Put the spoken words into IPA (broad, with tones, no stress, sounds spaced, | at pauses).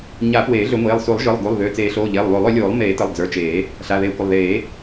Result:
ɲ a˨˩˦ p w eː˨˩˦ ɮ ʏ˨˩˦ ŋʷ eː˩˧˩ lˠ s u˨˩˦ lˠ ʒ ɯ˩˧˩ lˠ ɡ u˩˧˩ lˠ ð ʏː˩˧˩ t͡s eː˨˩˦ ɬ oː˩˧˩ ʎ eː˩˧˩ lˠ β o˨˩˦ lˠ ʏ˨˩˦ lʲ oː˨˩˦ lˠ m eː˨˩˦ t ə˩˧˩ lˠ d͡z ə˞˩˧˩ t͡ʃ eː˨˩˦ | ɬ a˩˧˩ ð eː˨˩˦ kʷ ə˩˧˩ lˠ ð eː˨˩˦